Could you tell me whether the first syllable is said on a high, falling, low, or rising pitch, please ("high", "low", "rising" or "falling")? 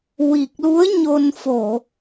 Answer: low